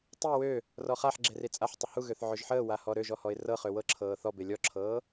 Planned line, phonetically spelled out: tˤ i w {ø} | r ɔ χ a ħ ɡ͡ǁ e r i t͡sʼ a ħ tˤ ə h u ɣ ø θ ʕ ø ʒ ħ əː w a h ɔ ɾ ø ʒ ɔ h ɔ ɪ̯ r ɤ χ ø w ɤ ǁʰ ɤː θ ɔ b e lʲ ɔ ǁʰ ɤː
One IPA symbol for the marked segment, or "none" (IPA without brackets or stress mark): ø